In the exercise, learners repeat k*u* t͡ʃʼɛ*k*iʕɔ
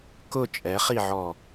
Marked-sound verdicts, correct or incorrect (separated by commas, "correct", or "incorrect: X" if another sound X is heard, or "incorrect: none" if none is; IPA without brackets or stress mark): incorrect: ʊ, incorrect: χ